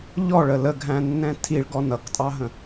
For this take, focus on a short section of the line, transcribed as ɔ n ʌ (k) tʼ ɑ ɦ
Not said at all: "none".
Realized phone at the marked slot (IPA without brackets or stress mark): k